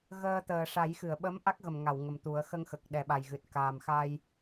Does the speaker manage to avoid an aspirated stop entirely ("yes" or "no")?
yes